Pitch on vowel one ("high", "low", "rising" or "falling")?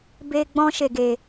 high